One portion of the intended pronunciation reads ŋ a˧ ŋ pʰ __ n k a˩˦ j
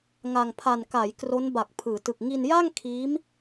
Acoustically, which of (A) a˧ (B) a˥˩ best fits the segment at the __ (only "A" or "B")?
A